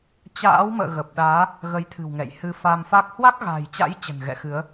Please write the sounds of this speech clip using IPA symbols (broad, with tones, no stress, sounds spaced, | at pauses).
t͡ɕ a̰ː˧˥ w m ə̰ː˧˨ ɣ ə˨˩ p̚ ɗ aː˨˦ | ɣ ə˨˦ j t̪ʰ ɨ̤˨˩ w ŋ ɛ̰˧˨ j h ɨ˧ f a˧ m f a˦˥ k̚ h w a˦˥ k̚ ɣ a̤ː˨˩ j t͡ɕ a̰˧˥ j t͡ɕ ə̤˨˩ n ɣ ɛ̰˧˨ x ɨ˨˦ ə̯